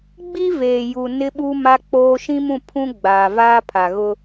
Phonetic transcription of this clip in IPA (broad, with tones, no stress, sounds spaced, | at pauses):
ɡ͡b i˦ v eː˨ j u˨ n ɪ˦ ɓ u˦ m a˦ k͡p oː˦ ʃ ĩ˦ m ũ˦˨ pʰ ũ˦ ɡ͡b aː˨ v aː˦ pʰ a˨ ɣ ʊ˦